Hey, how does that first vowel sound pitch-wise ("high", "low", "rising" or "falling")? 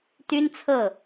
high